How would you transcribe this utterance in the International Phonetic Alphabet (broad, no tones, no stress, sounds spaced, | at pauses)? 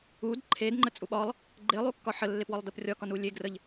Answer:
u d ǃʰ e d ŋ͡ǃ ə t͡sʼ u ɓ ɒ lˠ | ɡ͡ǃ e lˠ u kː ɒ ħ ə lː e p w ɒ lˠ d ə p rʲ ɒ k ɒ n u lʲ e ɡ r ə ʎ